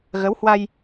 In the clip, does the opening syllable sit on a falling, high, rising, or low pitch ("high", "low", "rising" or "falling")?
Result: rising